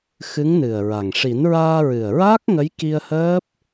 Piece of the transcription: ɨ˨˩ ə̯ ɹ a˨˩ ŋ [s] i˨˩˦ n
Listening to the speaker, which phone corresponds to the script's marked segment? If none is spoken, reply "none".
ʂ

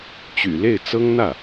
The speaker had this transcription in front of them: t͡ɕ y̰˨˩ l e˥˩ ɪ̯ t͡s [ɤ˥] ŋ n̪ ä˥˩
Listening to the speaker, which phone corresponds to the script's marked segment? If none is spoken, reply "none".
ɤ˥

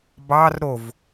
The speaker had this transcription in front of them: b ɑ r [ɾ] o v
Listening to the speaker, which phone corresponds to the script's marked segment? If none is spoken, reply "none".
ɾ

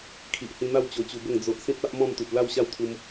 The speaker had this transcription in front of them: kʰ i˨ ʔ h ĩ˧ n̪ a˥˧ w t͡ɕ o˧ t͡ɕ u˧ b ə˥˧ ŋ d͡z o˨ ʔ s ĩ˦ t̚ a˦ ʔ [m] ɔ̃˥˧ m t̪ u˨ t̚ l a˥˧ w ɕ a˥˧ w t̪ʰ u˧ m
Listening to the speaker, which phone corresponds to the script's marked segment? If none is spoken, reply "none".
m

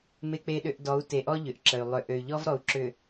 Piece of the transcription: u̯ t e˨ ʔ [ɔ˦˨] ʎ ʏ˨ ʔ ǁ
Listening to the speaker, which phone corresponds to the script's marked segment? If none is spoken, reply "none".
ɔ˦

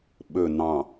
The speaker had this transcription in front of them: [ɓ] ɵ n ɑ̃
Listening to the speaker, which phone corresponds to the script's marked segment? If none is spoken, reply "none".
ɓ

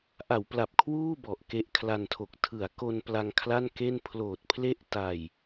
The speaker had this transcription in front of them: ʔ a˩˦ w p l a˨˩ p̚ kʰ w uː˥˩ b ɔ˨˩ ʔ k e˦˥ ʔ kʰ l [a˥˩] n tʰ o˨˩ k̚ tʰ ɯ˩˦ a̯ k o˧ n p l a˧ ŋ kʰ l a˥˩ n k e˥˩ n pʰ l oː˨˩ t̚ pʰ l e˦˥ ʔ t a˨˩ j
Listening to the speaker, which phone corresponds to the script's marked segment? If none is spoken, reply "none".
a˧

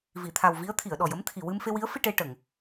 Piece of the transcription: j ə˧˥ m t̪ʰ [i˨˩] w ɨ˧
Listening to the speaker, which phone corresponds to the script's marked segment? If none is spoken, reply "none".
i˨˩˨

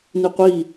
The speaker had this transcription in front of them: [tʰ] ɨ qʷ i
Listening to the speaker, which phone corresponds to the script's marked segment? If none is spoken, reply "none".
n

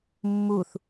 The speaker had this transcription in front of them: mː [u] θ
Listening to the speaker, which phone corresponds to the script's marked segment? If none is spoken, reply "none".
u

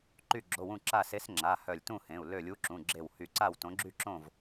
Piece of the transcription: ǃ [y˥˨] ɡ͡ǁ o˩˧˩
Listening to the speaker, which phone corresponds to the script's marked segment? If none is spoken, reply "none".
y˧˩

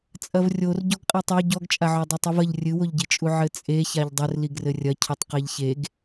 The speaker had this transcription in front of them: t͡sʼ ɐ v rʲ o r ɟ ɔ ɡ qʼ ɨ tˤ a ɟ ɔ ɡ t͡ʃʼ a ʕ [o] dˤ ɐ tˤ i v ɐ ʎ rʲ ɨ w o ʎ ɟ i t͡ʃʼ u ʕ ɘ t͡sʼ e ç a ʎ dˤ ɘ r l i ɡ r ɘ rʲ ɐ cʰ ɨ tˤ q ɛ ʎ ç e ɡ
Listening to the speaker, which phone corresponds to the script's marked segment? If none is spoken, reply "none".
ɔ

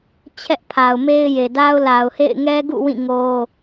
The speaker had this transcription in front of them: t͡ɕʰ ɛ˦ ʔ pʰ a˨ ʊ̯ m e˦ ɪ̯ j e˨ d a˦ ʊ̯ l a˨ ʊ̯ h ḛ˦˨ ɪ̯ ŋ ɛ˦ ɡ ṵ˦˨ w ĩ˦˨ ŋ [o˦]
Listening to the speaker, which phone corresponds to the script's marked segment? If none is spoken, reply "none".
o˦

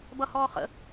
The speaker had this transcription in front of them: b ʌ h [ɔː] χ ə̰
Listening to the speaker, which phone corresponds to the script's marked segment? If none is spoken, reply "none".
ɔː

